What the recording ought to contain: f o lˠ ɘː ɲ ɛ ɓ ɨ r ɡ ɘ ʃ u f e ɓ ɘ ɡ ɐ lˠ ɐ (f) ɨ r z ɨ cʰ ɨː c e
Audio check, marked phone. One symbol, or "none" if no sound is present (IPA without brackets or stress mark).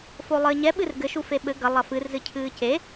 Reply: f